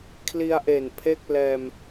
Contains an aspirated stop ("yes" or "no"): yes